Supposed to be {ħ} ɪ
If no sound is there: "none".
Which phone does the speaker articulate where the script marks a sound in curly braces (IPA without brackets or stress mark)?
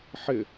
ħ